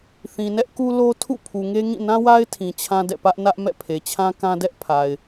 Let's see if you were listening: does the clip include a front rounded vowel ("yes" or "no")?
no